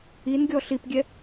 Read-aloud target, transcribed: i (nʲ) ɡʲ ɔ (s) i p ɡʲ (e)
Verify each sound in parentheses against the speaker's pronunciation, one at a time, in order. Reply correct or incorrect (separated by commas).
incorrect, incorrect, incorrect